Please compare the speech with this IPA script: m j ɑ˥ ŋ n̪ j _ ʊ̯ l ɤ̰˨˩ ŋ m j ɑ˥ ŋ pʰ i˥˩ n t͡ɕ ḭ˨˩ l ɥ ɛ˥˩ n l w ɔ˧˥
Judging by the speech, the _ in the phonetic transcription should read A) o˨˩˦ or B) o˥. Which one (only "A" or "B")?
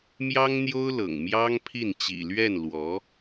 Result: B